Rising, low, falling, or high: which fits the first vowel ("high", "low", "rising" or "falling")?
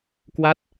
falling